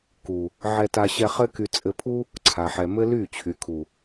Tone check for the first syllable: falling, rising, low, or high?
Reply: low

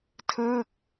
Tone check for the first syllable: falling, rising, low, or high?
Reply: falling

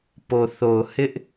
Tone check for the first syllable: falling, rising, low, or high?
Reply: low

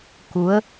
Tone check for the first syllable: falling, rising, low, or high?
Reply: rising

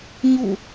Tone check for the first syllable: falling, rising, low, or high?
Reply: falling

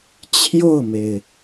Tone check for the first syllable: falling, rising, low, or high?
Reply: falling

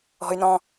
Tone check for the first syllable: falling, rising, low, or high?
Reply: low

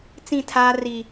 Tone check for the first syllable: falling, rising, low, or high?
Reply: falling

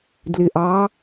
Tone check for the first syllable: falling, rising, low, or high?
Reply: low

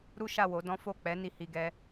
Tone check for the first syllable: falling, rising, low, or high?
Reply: high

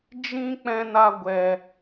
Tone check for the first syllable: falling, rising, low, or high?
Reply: high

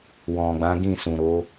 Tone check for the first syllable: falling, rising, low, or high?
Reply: low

